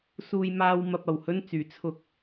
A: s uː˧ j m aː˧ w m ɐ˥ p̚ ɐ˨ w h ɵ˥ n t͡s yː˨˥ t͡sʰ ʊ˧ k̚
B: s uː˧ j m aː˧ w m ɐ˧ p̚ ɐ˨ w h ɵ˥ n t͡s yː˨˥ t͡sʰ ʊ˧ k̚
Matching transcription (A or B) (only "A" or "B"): B